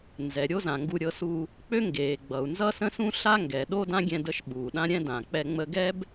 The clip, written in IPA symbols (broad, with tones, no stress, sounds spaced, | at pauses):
n z ɛ˩ ɾʲ o˥ z ã˩ ŋ ɡ u˧ ɾʲ ɤ˧ s u˧ | k͡p ø˥ ŋ ɡ eː˩ ɡ͡b ʌ˩ u̯ n z ʌ˥ s ə̃˥ s ũ˥ ɬ a˥ ŋ ɡ ɛ˩ ɗ o˥ d ã˥ ɡʲ ɛ̃˧ d ə˧ ʃ ɓ uː˩ ɗ ã˥ ɾʲ ɛ̃˥ d ã˩ k͡p ɛ˧ ŋ͡m ə˧ ɡ ɛ˥ b